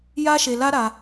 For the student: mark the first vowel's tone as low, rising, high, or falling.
high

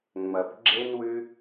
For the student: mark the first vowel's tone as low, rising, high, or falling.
low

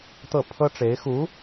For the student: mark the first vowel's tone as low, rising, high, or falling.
falling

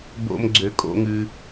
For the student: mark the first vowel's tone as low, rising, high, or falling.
low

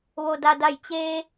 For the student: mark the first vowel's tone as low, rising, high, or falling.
low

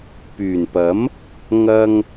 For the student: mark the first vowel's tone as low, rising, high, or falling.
low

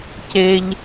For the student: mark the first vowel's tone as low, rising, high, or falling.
high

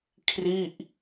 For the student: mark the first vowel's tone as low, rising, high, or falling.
falling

